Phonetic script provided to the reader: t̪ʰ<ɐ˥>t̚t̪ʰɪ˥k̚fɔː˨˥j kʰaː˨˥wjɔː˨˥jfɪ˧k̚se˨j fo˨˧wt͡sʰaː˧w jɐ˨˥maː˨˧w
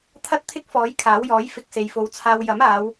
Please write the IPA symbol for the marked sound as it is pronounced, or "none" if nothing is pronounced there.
ɐ˥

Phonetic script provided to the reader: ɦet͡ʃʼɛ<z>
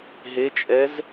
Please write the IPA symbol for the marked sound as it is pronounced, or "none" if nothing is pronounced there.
z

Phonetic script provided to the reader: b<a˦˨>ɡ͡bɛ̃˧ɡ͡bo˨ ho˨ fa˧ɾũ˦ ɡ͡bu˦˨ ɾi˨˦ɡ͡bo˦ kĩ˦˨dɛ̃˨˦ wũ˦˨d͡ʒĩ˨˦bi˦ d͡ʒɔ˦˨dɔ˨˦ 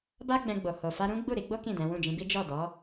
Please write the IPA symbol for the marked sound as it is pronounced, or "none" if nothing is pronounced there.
a˦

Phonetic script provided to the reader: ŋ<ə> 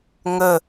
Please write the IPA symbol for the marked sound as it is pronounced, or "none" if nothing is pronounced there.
ə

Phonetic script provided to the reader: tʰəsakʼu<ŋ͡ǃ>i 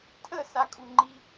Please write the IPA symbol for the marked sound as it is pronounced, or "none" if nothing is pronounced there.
ŋ͡ǃ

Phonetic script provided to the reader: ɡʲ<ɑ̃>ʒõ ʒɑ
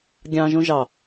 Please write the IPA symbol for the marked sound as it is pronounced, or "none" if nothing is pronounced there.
ɑ̃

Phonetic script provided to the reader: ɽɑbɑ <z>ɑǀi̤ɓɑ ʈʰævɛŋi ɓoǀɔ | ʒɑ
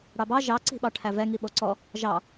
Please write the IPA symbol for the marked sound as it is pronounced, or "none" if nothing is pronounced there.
ʒ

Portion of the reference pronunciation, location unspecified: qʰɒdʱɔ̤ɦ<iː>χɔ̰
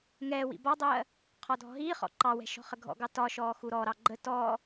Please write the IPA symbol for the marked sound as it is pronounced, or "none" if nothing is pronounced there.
iː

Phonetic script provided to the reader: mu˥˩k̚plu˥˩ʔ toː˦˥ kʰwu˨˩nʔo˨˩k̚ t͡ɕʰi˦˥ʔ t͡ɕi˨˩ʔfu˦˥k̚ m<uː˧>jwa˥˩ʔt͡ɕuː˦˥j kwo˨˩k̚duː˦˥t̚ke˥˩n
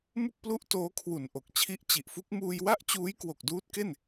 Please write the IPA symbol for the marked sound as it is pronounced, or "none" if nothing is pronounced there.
uː˧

